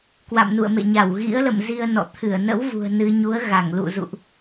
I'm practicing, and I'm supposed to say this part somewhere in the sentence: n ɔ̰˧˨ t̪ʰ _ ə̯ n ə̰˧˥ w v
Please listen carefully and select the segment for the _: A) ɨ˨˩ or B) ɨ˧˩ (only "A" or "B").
B